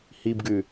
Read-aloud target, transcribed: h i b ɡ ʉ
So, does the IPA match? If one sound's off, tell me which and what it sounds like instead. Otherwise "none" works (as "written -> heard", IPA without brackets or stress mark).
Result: none